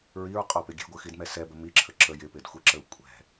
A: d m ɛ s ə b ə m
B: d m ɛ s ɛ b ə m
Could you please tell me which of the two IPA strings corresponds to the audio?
B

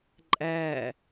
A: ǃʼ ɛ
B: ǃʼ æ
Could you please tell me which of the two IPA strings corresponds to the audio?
B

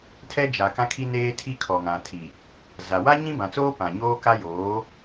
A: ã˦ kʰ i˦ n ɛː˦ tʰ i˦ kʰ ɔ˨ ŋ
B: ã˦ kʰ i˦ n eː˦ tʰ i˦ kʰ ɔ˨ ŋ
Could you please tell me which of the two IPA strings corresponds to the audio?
B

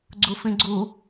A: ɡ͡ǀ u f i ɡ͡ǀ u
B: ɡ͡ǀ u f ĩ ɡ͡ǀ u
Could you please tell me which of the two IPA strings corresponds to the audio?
B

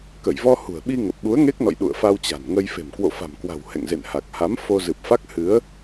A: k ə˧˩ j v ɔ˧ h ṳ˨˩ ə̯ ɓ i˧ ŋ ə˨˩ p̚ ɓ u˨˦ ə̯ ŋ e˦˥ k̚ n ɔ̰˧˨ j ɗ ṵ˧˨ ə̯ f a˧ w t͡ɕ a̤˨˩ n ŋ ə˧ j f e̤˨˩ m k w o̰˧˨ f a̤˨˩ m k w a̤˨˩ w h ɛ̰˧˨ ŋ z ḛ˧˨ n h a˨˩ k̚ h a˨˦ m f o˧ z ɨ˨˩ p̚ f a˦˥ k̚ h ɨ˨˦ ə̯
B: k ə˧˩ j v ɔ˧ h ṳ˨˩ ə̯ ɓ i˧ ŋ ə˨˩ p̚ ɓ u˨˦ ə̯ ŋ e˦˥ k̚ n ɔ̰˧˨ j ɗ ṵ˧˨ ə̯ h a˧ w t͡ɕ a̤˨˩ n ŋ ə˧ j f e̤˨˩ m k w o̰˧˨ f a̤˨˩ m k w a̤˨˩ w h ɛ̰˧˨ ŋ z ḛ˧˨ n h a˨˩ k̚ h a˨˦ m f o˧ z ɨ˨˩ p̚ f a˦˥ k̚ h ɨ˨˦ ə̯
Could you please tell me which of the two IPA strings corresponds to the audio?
A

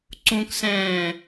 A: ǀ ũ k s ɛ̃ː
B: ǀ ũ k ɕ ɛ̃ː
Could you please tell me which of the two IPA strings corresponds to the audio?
A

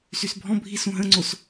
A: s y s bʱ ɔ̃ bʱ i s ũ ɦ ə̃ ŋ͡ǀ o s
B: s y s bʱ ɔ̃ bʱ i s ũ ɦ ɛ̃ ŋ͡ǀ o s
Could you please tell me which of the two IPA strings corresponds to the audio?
A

